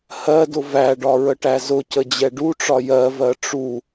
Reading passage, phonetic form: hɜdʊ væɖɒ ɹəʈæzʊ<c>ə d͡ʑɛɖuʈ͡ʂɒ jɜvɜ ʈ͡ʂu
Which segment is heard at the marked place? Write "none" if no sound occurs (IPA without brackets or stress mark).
c